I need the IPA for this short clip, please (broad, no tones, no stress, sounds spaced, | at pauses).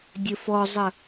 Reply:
dʲ ə f ɔ zˤ ə